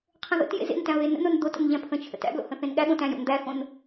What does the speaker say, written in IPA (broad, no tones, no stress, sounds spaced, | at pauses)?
qʰ ə̃ ð ə̰ t j ḛ z ḛ n t æ̃ β e n ə̰ n o n d̪ o t ə̰ n ʎ æ̃ pʰ ə̃ t͡ʃʰ ə̰ t æ̰ b l o̰ h ə̃ θ ẽ n ɠ æ ɠ õ t æ̃ j o̰ n d̪ æ x õ n